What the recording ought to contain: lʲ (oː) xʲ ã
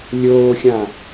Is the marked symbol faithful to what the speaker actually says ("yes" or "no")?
yes